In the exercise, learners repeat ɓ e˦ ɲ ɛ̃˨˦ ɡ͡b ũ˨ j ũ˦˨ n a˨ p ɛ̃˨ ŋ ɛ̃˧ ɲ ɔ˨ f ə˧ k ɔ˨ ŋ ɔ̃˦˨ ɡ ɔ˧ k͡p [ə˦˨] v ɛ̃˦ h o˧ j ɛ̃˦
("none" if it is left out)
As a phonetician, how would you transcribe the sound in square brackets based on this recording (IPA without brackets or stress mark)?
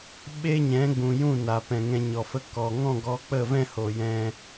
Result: ə˦˨